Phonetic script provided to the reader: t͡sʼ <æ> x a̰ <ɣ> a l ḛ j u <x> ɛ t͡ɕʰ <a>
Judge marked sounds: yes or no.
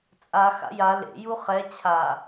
no, no, no, yes

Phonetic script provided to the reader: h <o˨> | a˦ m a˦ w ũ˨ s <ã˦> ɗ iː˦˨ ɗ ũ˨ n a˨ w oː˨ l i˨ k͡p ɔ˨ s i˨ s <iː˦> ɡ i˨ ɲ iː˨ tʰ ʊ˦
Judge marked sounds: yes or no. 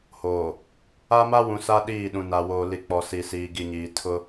no, no, no

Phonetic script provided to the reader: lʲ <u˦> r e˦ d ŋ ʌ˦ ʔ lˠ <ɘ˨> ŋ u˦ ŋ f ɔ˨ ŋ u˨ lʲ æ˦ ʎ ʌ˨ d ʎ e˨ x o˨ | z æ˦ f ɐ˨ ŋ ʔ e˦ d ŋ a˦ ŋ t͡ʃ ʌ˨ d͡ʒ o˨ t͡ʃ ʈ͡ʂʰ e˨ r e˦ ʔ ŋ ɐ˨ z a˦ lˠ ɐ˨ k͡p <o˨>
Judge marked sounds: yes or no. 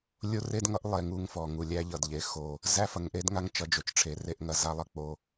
no, no, yes

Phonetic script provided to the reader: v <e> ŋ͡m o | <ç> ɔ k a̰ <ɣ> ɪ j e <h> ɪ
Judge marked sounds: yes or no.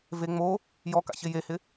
yes, no, no, yes

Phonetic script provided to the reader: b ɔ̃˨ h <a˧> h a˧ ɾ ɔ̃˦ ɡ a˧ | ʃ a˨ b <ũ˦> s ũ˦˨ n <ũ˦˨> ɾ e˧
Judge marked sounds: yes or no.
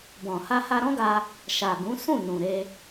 yes, no, no

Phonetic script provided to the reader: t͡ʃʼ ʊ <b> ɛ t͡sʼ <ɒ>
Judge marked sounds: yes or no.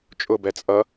yes, no

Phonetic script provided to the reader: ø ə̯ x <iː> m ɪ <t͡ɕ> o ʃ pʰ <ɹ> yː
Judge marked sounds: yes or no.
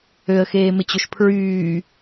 no, yes, yes

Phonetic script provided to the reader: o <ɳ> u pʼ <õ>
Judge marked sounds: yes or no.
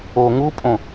no, yes

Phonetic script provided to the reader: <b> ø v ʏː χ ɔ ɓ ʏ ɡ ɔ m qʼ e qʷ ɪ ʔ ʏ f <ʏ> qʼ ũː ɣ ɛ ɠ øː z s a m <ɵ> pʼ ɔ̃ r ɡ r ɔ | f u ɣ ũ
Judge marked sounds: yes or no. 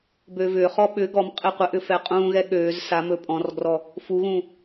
yes, no, yes

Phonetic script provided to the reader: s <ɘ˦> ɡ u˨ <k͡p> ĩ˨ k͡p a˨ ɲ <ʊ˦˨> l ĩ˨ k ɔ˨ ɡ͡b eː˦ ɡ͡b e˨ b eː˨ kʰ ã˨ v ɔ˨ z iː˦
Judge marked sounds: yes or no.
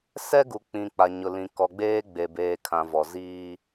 no, yes, no

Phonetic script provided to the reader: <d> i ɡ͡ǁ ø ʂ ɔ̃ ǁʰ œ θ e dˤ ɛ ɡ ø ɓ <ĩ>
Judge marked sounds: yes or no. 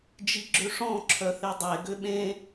no, no

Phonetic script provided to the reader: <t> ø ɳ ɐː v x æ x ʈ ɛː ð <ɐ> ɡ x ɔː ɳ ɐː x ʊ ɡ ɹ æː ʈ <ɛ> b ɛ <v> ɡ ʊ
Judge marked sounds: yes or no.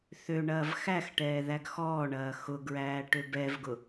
no, no, no, yes

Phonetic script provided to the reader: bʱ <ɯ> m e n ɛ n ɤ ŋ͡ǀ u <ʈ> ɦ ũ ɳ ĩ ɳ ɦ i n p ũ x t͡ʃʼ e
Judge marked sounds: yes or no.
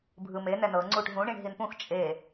yes, yes

